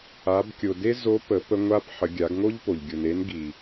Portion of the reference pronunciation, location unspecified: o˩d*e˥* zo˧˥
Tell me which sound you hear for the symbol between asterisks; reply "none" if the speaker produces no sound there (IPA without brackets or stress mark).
e˥